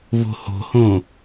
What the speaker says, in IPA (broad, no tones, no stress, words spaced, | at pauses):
vo̤ho̤hõ